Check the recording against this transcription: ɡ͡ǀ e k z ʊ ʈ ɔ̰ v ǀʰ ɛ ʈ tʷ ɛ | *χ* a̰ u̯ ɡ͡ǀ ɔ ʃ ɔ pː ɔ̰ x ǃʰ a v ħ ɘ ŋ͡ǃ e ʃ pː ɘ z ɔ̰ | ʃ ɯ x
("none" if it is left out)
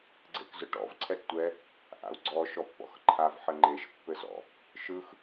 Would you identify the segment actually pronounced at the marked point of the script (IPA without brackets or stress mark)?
ʔ